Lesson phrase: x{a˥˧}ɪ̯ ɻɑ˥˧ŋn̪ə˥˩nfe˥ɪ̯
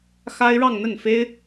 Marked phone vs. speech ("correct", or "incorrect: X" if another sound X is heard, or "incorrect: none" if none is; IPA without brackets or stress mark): incorrect: a˥